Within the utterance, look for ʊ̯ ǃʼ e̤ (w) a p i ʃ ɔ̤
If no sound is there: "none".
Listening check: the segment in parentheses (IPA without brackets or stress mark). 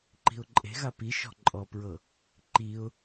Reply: ɣ